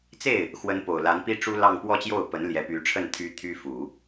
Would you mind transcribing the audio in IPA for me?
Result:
t͡s e˥˩ ɪ̯ | x w ə˧˥ n p o˨˩ ʊ̯ l a˧˥ n p i˥ ʈ͡ʂ u˥ l ɑ˥˧ ŋ p w ɔ˥˧ t͡ɕ j o˥˩ ʊ̯ p ə˧˥ n l j ɛ˧˥ p y˧˥ ʈ͡ʂʰ ə˥˩ n t̪ʰ y˥ t̪ʰ y˥ f u˨˩˦

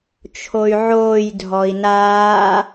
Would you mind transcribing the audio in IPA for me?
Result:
t͡ʃʰ o y̯ ʕ oː j dʱ ɔ i̯ n aː

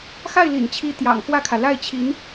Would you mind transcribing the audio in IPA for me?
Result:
x a˥˩ ɪ̯ l ḭ˨˩ n t͡ɕʰ i˧˥ t̪ j ɑ̰˨˩ ŋ x w ä˥˩ kʰ ä˩ l a˥˩ ɪ̯ t͡ɕʰ i˧˥ n

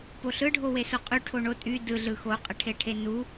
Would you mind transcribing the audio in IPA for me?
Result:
p o ɬ ɯ ɖʱ o w e s o qʼ y ʈʰ o ɳ o tʼ y d ɯ ɮ ɯ x o qʼ ə ʈʰ e ʈʰ e n u

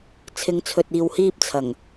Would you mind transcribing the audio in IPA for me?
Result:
t͡sʰ ɪ˨˧ ŋ t͡sʰ ɵ˨ t̚ iː˨ w h iː˧ p̚ t͡sʰ ɐ˨˩ ŋ

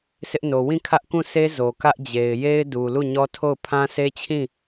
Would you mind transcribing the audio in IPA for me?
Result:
sʰ ɪ˦ ʔ n o˨ w ĩ˦˨ kʰ ä˦ ʔ k ũ˦˨ sʰ e˦ z o˨ k ä˦ ʔ d͡ʑ e˨ ɪ̯ j e˦ ɪ̯ d u˨ l u˦˨ ɲ ɔ˦ tʰ o˦˨ ʊ̯ pʰ ã˦ sʰ e˦ t͡ɕʰ ĩ˦˨

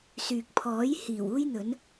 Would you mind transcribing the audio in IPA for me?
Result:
s yː˨ k̚ pʰ ɔː˨˥ j h iː˨˩ w uː˥ j n̪ ɵ˨˥ n

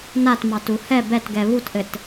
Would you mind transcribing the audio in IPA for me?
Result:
n a t m ɑ t u h ɛ b ɛ t ɡ ɛ β u t ʔ ɘ t

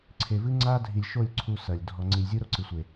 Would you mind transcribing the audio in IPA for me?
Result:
ǀʰ e˨ v ɨ˦ ŋ͡ǀ a˦ dʱ i˨ lʲ ʃ o˦˨ lʲ ǀʰ u˦ s ɐ˨ lʲ dʱ ɔ˨ ŋ͡ǀ i˨ lʲ zʲ u˦ ɾ o˦ ǀ ɨ˨ sʷ e˨

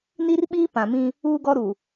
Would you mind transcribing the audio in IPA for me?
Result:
n i˦ r ɓ iː˦ p ã˨ m ĩ˦ | uː˦ ɡ ɔ˦ ɾ u˨

